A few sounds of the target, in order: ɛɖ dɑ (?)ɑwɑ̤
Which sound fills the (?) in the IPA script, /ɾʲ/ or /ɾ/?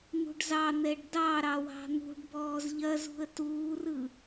ɾ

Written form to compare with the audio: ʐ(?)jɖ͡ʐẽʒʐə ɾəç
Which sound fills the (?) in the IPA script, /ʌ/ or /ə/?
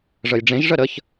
ə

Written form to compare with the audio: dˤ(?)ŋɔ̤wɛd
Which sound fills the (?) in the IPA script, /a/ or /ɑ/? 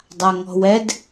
a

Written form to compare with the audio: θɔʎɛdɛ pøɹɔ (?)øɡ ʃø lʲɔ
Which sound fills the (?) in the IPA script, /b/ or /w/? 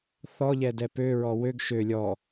w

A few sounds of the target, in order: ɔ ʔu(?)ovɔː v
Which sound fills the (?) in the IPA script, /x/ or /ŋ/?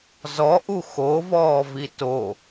x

